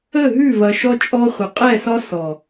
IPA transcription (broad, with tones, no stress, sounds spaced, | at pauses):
ə˦˨ ɦ ʉ˦˨ v ɐ˨ ʃ ɔ˦ t͡ʃʼ ɔ˦ χʷ ə˨ qʼ ɛ˦˨ s ɒ˦ s ɔ˨